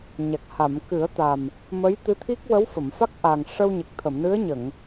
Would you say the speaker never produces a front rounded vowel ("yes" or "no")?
yes